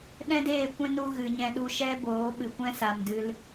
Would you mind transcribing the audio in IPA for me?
ɗ ɛ̃˦ d eː˦˨ kʷ ɛ̃˦ n u˧ ɣ ɨ˨ ɲ ɛ̃˧ ɗ u˧ ʃ ɛ˦ b oː˨˦ ɓ ɨ˨ kʷ ɛ̃˦ s a˨ m d ɨ˧ l

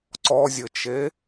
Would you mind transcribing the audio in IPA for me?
ǀ ɔ zʲ ɘ t͡ʃ e

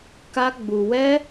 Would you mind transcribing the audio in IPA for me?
k a˦ ɡ͡b u˧ w ɛ˦

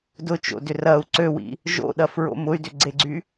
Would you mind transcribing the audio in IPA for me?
d ʊ t͡ʃ o̰ d ʏ r ɐ u̯ ǀ ø w ḭ | ʒ o̰ ɗ ɐ f ɹ o̰ m ʊ y̯ d ʏ ɡ͡ǀ e ɡ͡ǀ y

